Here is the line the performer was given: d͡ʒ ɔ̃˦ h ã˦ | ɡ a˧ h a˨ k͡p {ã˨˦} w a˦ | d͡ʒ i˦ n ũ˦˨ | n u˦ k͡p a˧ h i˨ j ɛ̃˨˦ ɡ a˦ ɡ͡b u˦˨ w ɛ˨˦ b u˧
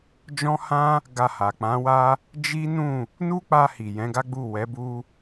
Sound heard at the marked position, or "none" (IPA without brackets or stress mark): ã˨˦